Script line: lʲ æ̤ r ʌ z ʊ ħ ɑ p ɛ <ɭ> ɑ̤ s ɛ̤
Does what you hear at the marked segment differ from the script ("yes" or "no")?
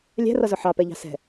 yes